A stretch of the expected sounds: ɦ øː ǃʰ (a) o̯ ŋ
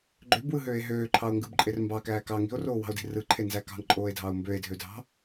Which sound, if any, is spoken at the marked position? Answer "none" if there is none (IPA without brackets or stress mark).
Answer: ɑ